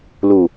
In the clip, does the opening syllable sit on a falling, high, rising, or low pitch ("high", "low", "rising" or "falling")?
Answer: low